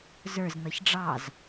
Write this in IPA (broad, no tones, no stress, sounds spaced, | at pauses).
z ə˞ z n̪ ʌ ç ɖ͡ʐ ɑ z